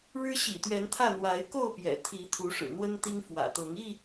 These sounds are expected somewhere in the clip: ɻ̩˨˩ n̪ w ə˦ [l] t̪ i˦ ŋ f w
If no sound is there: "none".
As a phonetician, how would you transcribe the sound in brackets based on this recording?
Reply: n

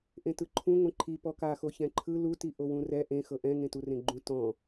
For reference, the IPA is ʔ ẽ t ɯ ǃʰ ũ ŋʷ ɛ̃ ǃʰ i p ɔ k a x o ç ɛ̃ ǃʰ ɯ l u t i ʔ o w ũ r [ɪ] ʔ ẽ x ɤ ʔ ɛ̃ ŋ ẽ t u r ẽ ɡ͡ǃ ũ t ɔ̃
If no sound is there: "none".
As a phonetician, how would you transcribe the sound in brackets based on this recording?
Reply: ɛ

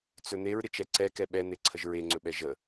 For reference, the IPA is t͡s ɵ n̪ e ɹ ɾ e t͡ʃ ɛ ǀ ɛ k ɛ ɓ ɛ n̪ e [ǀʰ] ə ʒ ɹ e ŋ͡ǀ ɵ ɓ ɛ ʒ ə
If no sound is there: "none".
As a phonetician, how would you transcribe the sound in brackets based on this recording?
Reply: ǀʰ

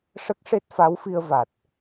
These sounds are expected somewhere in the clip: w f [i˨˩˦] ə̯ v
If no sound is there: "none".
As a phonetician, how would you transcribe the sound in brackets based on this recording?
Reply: i˧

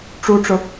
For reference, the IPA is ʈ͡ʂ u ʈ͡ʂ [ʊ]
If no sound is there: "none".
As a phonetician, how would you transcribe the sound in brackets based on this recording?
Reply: ʊ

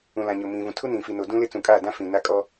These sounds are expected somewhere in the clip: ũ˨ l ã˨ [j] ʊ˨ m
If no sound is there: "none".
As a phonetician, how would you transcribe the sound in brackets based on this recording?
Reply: ɲ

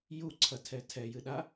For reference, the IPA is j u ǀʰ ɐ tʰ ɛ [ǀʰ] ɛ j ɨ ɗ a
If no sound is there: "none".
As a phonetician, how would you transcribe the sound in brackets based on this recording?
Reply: tʰ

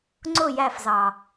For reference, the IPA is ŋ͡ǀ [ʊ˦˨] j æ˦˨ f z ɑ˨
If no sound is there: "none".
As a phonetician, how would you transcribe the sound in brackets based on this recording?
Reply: ʊ˦˨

